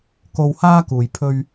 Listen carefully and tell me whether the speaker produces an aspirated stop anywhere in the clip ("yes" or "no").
yes